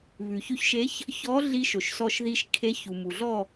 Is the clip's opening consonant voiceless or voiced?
voiced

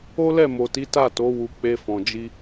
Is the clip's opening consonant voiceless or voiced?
voiced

